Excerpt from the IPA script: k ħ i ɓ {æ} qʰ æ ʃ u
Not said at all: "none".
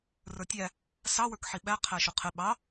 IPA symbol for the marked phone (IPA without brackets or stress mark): æ